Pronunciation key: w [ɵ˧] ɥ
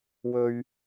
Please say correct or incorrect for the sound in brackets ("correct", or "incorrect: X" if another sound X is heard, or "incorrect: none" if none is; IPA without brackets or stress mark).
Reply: correct